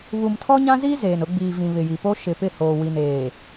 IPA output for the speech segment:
β u˨ m tʰ ɔ˦ ɲ ã˦ z iː˦ z eː˨ n ʊ˨˦ ɡ͡b iː˨ v ĩ˨ β ɪ˨ j i˨ p o˦ ʃ ɪ˨ p ɪ˦˨ h oː˨ w i˨ n eː˨

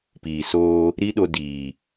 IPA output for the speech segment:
p iː˨ s oː˧ | ɾ i˦ ɗ o˧ d iː˨

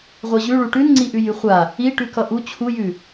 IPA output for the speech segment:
ʁʷ ʌ ʑ ʉ ɭ u ʈ ʉ n ŋ͡ǀ i ʔ ʉ j ʉ χʷ a | i ʈ ʉ k ʌ ʔ u t͡ɕʰ u j ʉ

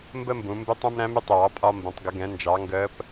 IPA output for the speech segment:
m b ə˥ m b ũ˩˧ m b ɪ˧˥ tˤ ũ˧ m ɾ æ̃˧˥ m ɪ˧˥ tˤ ɪ˩ w ɑ˧ pʼ ɒ˧ m b ə̃˩˧ tˤ ɡ ə˩˧ ɡ ɛ̃˩˧ n d͡ʒ ɑ˩˧ ŋ ɡ əː˧˥ p

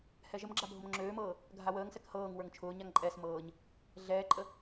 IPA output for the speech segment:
h ɛ ʒ ə m ɡ͡ǁ a bʱ ʊ m ŋ͡ǁ øː m ɤː | ɡʱ a w əː ŋ s ɛ k h ɤː ŋ w ə˞ ŋ t͡ʃʰ ʊː ɲ a ŋ ǃʼ ɛ s m ɤː ɲ | ɮ ɛː ǃʼ ə

